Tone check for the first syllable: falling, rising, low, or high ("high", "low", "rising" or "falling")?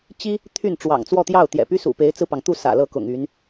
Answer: high